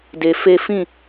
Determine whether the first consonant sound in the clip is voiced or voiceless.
voiced